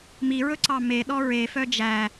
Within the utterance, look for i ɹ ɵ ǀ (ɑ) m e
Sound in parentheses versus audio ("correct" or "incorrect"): correct